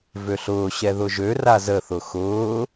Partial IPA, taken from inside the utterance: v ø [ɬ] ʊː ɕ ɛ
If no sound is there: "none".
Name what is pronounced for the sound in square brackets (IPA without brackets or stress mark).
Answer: ɬ